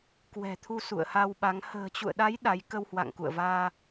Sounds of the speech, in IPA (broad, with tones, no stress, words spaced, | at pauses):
kwɛ̤˨˩t̪ʰu˧ sṵ˧˨ə̯ha˧wɓa˨˦ŋ hə̤ː˨˩t͡ɕṵ˧˨ə̯ɗa˨˦j ɗa˨˦j kə˧whwa̰˧˨ŋkṵ˧˨ə̯vaː˧